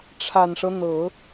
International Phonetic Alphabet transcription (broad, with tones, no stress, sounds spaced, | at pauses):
ʈ͡ʂʰ a˨˩ n ʂ ɤ˦ n̪ ɤ˨˩˦